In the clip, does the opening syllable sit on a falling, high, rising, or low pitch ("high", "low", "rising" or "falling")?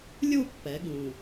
falling